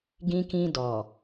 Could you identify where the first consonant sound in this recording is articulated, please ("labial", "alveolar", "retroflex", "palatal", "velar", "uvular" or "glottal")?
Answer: velar